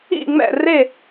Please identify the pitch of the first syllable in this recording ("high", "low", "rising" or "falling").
falling